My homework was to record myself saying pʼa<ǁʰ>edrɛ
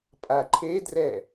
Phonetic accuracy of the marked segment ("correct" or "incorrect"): incorrect